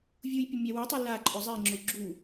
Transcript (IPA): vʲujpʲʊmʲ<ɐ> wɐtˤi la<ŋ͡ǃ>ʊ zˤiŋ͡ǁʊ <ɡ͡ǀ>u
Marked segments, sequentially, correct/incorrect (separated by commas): incorrect, incorrect, incorrect